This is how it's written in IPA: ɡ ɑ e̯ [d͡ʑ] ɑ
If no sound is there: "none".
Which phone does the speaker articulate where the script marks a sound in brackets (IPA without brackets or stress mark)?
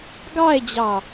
d͡ʑ